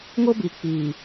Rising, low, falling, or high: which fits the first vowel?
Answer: high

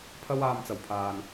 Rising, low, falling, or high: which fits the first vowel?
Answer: high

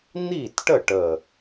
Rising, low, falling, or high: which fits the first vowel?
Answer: falling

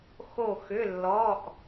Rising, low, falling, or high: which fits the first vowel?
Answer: falling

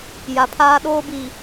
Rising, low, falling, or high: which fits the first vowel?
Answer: low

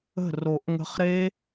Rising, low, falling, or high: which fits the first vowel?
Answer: falling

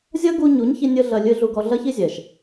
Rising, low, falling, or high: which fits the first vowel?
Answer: high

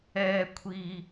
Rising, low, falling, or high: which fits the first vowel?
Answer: high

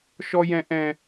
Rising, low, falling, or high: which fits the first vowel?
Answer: high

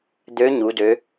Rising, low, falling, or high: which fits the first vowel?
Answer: rising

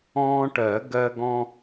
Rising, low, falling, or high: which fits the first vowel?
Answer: high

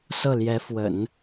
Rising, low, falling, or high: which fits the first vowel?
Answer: falling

